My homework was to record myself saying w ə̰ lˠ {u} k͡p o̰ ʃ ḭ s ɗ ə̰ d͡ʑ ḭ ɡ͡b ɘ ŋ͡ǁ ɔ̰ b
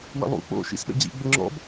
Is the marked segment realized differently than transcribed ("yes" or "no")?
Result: yes